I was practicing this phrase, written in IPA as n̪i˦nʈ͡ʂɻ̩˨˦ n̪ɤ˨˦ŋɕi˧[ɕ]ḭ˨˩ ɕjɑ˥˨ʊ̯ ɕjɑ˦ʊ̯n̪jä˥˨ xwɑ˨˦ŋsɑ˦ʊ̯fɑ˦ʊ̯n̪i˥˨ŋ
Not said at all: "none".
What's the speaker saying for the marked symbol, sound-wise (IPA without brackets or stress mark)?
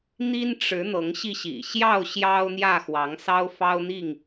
ɕ